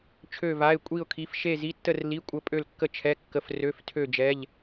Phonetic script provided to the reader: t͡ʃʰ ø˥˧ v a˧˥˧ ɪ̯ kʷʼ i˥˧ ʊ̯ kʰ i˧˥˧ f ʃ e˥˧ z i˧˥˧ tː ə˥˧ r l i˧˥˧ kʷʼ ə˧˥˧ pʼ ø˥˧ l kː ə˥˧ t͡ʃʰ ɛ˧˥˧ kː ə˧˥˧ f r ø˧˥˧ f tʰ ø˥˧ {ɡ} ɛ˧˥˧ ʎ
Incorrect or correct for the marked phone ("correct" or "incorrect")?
incorrect